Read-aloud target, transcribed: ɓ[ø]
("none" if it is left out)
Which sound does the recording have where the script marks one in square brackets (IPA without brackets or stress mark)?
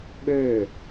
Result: ø